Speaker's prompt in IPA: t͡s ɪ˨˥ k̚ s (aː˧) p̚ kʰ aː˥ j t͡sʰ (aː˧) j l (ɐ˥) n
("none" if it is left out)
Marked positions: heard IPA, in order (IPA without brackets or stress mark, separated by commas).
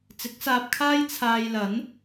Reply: aː˧, aː˧, ɐ˨˥